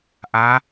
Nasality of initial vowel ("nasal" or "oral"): oral